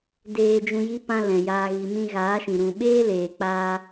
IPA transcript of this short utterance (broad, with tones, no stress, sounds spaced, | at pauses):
d eː˧ d͡ʒ ũ˧ j i˦ p ã˦ l ɛ̃˨ j aː˧ ɣ i˨ m ĩ˧ ɣ aː˨˦ ʃ ĩ˨ ɾ ũ˨ ɓ eː˦ l eː˨ k͡p aː˧